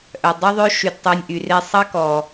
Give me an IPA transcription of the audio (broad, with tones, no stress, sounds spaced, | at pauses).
ʔ œ˨ dˤ u˦ ðˤ ø˦ ʃ y˨ d tˤ y˨ nʲ ʔ y˨ r e˧ sˤ ɑ˦ k ɔ˨